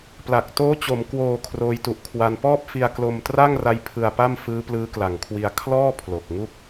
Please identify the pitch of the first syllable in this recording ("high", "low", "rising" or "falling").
low